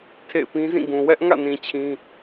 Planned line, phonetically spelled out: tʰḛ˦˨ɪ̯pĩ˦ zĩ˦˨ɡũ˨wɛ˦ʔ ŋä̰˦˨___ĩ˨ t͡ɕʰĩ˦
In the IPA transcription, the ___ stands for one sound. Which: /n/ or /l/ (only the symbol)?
n